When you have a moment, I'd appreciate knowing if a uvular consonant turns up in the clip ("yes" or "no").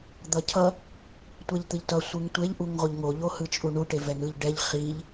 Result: yes